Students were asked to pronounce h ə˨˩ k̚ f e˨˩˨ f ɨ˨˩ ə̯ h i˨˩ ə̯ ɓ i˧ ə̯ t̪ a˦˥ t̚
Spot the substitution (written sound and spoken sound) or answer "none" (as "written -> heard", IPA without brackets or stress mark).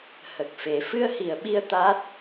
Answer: ɨ˨˩ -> ɨ˧